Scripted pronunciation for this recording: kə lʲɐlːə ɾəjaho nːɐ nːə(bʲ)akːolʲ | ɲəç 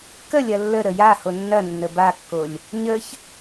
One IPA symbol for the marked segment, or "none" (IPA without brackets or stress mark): b